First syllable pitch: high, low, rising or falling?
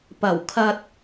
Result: low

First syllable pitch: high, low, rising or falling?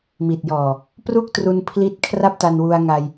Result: low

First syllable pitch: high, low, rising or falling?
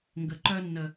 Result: low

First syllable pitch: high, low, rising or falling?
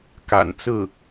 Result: low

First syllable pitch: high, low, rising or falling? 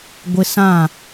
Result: high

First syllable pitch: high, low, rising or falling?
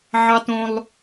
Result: high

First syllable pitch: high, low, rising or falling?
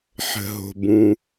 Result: low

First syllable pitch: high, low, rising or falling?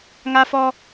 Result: high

